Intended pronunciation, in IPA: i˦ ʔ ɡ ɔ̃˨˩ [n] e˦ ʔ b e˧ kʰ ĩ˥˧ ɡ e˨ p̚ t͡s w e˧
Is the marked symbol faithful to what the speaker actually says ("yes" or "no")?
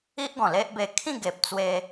no